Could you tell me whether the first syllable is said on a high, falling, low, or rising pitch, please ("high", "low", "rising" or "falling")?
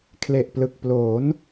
low